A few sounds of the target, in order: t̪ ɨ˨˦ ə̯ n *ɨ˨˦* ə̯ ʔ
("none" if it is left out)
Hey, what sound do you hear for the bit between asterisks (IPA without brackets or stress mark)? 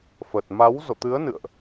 ɨ̰˧˨